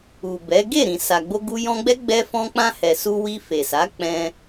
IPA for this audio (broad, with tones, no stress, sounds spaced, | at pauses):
u˨ b ɛ˨˦ ɡ e˦˨ ɾ ĩ˨ s a˨ ɡ͡b o˧ ɡ u˧ j ɔ̃˧ ɡ͡b ɛ˦ ɡ͡b ɛ˦ f ɔ̃˧ k͡p ã˧ h ɛ˨ s u˧ w i˧ f e˨ s a˨˦ k͡p ɛ̃˦